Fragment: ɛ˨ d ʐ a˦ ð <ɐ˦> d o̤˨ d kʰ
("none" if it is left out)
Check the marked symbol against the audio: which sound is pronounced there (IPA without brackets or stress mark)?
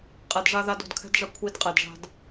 a˦